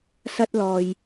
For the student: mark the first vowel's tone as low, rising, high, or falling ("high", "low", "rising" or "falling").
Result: high